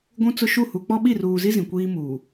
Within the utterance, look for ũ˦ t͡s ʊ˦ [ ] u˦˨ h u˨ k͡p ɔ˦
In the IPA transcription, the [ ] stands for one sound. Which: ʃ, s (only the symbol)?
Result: ʃ